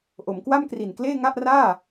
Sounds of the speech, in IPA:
ʔo˩˦mkwa˥˩mkri˨˩n kleː˥˩ŋa˥˩ʔraː˥˩

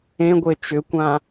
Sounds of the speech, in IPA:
ẽɡʷe t͡ʃʏkʷã

